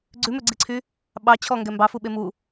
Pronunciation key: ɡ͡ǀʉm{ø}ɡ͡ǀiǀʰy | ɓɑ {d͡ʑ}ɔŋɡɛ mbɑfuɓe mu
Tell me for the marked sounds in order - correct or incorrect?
correct, incorrect

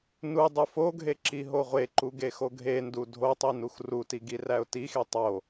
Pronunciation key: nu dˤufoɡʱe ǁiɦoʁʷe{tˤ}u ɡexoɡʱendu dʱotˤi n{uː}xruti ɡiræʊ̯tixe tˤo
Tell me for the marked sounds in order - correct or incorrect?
incorrect, incorrect

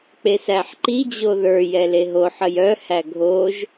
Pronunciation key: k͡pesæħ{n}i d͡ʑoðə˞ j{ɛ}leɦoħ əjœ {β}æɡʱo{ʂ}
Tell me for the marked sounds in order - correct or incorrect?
incorrect, correct, incorrect, incorrect

